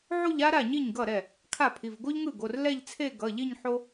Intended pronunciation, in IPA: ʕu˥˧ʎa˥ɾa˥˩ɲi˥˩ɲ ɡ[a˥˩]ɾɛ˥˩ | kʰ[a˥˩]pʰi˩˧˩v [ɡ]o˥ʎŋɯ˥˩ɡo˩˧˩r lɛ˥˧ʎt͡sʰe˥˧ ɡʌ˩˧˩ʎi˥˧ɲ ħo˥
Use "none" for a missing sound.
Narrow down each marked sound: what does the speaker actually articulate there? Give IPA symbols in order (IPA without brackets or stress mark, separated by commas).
ʌ˥˩, a˥˩, ɡ